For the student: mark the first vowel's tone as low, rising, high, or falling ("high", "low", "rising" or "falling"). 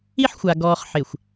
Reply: high